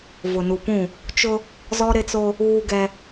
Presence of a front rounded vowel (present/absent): absent